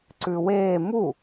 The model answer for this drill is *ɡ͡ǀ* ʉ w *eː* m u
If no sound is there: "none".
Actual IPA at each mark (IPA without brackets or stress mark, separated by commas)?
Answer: ǀ, eː